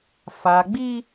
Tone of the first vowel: low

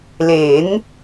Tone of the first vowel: rising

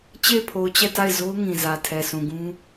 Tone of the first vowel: falling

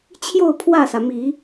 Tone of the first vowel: falling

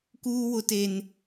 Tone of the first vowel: high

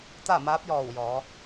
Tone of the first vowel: falling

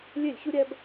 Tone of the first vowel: falling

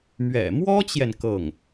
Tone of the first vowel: low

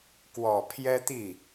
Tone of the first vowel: low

